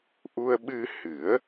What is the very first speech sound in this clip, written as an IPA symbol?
ʔ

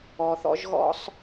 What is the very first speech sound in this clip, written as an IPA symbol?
ɔ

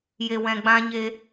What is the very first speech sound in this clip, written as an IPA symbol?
j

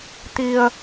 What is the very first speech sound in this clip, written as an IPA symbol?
t̪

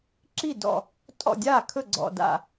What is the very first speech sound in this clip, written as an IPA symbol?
ǁ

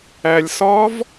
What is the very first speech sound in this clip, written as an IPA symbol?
æ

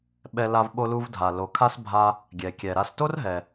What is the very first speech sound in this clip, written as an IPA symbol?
ɓ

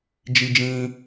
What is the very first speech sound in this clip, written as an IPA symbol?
d͡ʒ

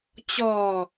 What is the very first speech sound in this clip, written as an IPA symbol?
t͡ɕ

